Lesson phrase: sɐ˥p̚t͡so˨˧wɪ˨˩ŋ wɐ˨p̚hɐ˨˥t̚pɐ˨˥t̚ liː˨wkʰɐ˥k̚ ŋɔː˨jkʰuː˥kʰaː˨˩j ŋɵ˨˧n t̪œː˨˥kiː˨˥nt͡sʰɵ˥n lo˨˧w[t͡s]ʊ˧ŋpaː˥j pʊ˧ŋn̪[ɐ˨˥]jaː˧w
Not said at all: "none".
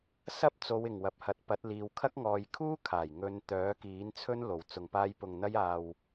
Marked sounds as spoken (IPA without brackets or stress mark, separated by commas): t͡s, ɐ˥